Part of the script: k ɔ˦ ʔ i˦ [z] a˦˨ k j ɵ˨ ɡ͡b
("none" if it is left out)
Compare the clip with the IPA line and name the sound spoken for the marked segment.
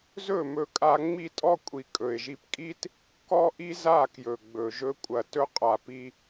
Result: z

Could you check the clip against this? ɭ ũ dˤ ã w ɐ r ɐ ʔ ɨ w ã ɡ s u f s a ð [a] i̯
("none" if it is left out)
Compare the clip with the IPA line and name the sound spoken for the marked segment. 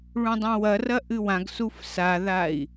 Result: a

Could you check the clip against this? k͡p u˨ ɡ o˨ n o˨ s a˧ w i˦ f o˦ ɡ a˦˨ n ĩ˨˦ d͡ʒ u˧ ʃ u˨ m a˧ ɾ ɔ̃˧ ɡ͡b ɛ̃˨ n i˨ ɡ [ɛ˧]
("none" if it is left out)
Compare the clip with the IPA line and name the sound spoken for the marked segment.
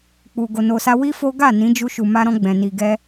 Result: ɛ˧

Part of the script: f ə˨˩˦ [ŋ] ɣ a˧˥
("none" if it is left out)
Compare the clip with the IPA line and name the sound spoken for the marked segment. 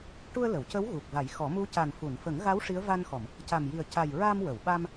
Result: ŋ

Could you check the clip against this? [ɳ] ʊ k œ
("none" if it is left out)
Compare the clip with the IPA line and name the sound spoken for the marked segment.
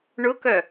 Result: ɳ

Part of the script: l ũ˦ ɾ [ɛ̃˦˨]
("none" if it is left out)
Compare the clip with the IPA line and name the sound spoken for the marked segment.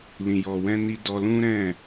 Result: ɛ̃˦˨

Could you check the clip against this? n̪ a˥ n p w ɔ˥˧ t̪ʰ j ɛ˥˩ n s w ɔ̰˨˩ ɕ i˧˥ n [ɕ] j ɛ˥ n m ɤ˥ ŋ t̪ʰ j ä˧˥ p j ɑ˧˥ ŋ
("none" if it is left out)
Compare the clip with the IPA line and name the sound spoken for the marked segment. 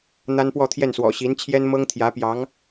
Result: t͡ɕʰ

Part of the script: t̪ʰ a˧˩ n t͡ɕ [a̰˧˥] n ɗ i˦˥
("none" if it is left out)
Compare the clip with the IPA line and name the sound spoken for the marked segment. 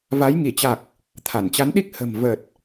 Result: a˨˦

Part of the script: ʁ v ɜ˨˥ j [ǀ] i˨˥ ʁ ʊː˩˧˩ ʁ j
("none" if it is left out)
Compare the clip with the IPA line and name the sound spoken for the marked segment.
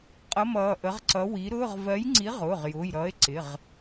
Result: ŋ͡ǀ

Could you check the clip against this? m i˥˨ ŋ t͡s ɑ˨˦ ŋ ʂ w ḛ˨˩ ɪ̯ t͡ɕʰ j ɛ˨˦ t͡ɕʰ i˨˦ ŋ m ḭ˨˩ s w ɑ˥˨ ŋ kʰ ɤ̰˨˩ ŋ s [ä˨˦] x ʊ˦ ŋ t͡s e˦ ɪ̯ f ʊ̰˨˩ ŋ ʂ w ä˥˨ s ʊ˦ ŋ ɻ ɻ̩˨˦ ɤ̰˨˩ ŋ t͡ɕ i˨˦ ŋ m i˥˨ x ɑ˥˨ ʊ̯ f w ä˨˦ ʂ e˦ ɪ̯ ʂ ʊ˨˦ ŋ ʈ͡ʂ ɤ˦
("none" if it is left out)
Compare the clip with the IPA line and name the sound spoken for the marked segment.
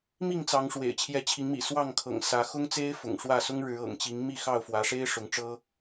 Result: ä˨˦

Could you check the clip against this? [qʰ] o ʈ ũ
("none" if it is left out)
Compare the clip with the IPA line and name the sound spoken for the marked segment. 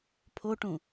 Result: pʰ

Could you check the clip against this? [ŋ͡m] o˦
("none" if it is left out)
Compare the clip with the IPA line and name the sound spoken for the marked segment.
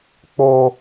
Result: k͡p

